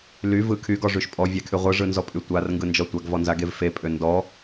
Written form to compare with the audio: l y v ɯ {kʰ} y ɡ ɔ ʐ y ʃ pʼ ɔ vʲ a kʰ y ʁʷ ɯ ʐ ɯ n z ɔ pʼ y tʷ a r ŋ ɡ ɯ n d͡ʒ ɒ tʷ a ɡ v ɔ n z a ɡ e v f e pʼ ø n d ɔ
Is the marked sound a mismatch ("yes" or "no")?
no